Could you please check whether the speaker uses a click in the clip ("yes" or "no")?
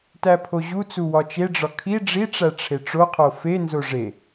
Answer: no